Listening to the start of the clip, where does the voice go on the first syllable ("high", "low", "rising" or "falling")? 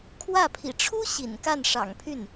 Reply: falling